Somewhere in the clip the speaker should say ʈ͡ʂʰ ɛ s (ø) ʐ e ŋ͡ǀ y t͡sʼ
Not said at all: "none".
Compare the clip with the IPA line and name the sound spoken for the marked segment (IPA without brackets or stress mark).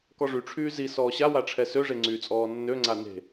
ø